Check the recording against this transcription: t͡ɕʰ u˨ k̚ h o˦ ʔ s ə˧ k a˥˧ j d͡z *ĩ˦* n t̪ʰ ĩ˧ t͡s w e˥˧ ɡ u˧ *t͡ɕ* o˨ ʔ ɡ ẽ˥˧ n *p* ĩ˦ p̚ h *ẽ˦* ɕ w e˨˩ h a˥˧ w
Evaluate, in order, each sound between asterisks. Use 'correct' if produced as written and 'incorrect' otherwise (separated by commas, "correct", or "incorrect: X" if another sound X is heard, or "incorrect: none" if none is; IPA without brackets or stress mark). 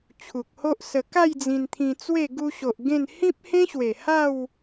incorrect: ĩ˧, incorrect: ɕ, incorrect: h, correct